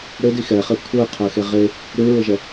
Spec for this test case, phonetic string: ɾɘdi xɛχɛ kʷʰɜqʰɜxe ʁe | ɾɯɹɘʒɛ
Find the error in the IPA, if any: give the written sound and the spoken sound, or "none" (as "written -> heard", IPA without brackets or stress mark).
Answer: none